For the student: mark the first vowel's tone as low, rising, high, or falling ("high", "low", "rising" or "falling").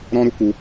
high